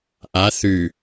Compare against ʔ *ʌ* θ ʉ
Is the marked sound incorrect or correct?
incorrect